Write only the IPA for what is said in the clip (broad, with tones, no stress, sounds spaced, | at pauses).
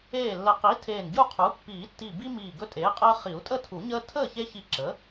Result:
eː˧˩ lː ə˨˩˦ q i˩˥ tʰ eː˧˩ n ɟ u˥˨ qʰ u˩˥ pː iː˨˩˦ tː i˧˩ b i˦ m iː˧˩ ɡ ɵ˦ tʼ eː˩˥ qʼ əː˦ χ i˨˩˦ u̯ tʼ ə˥˨ tʰ u˨˩˦ ɲ əː˦ tʰ əː˥˨ ç e˦ ç i˧˩ ǁ ə˩˥